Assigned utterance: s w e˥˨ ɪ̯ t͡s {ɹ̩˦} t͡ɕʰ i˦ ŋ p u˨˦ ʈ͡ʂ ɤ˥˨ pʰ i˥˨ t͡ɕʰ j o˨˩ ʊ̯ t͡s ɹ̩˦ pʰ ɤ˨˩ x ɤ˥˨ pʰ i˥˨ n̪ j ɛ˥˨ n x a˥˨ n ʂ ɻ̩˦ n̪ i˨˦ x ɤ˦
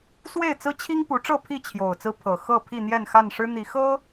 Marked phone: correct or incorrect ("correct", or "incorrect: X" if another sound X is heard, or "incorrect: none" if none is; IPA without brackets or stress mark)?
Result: correct